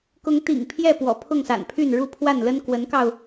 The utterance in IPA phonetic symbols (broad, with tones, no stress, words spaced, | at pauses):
kʊ˨˦ŋt̪ḭ˨˩ŋ pʰjɛ˥˨pwɔ̰˨˩ pʰʊ˥˨ŋsa̰˨˩npʰy˥˨n ɻu˥˨ pʰwa˥˨nlə˦n kwə˨˦nkɑ˧ʊ̯